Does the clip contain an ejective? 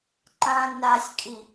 yes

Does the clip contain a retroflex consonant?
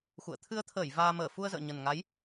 no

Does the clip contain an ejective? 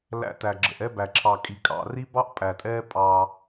yes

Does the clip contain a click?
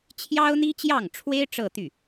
no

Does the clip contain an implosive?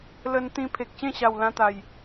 no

